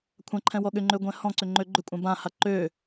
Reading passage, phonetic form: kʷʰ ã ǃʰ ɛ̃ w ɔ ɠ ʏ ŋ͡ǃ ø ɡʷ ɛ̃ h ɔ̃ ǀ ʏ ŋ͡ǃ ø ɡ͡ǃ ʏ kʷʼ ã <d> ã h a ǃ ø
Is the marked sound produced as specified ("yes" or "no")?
no